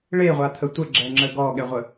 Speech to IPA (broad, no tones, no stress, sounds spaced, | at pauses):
ɭ e ʁʷ a t̪ʰ ə tʷ ə ɡ͡ǁ ɛ ŋ͡ǁ ə ɡ ɔ ɠ ɛ ʁʷ ə